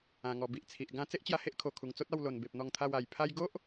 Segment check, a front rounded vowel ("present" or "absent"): absent